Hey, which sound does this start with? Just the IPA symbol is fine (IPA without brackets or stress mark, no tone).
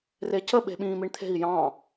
r